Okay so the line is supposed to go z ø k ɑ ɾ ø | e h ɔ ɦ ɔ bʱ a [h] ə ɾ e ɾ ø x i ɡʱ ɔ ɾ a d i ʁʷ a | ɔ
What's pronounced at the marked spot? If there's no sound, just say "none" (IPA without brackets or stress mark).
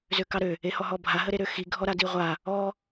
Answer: ɦ